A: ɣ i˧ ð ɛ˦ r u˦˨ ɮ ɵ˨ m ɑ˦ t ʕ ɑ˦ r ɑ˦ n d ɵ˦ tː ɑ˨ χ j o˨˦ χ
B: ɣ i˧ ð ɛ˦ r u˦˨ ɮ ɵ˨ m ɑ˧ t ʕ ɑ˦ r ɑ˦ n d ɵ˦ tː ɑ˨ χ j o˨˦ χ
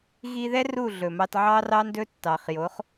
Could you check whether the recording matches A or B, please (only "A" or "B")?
B